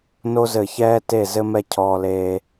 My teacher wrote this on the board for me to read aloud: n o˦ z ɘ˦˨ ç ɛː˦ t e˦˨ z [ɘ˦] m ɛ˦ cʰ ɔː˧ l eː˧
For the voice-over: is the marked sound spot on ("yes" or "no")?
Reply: yes